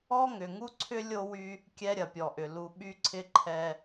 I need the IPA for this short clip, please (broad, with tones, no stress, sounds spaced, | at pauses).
ɔ˦ ŋ ʏ˨ ŋ u˦ ǀʰ ʏ˦ lʲ o˦ w y˦ | kʲ ɛ˦ ɾʲ ɐ˨ pʲ ɔ˨ ʔ ʏ˨ l u˨ ɓ y˦ ǀʰ ɪ˦ ǃʰ ɛ˦